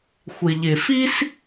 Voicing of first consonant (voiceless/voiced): voiceless